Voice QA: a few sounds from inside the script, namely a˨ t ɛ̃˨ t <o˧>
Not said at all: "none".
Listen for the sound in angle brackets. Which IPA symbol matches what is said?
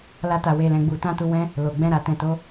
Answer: o˨˦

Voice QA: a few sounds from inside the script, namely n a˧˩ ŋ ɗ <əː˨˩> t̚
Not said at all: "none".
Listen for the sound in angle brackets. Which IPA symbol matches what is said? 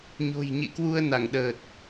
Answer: əː˨˩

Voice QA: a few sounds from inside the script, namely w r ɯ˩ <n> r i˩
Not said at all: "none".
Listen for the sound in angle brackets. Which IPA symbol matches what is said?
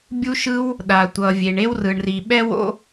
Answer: ɳ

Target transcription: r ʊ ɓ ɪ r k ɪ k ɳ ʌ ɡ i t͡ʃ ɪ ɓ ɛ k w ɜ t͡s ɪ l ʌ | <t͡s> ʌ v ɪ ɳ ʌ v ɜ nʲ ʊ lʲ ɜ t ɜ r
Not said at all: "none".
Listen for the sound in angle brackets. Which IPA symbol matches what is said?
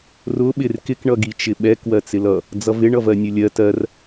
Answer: d͡z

